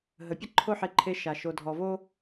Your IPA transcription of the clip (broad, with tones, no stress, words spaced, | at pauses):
ɦə˨pʲə˦ǃʰo˦ħe˧ ǃʰe˧ʃa˨ ʃo˨dʱɔ˨vo˦